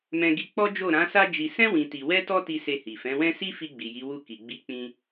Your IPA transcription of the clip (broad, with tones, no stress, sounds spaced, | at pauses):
m ɛ̃˧ ɡ i˧ k͡p ɔ˦ d͡ʒ o˦˨ ɾ ã˨˦ s a˦ d͡ʒ i˧ s ɛ̃˦ w ĩ˧ t i˧ w ɛ˦ t ɔ˦ t i˧ s e˧ h i˨ f ɛ̃˨˦ w ɛ̃˦ s i˦ f i˧ ɡ͡b i˨ j i˨˦ w u˦˨ k i˨ ɡ͡b i˨˦ k͡p ĩ˧